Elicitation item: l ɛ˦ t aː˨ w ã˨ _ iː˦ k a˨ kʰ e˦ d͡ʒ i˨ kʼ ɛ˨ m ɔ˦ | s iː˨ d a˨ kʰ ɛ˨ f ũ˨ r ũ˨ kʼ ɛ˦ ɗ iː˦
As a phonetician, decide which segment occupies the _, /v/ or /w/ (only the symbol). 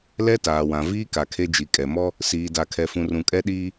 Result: v